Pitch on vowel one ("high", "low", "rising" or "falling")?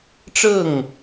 falling